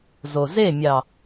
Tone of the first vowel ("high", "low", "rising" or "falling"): low